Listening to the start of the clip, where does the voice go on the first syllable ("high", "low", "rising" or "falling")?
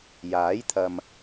rising